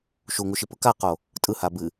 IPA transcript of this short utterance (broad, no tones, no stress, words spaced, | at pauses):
ʃuŋuʃi pɯkaqo | tʼɯha bɨ